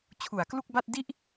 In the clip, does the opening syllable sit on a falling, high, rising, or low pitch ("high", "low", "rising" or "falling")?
low